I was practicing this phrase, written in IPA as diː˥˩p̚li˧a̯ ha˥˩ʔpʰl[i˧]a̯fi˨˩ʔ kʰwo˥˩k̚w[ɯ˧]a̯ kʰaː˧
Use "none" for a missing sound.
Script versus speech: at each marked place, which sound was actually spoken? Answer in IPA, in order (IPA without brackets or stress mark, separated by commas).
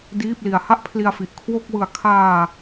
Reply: i˧, ɯ˧